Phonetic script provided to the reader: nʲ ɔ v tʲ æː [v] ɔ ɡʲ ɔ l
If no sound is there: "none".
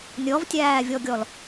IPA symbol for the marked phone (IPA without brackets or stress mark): vʲ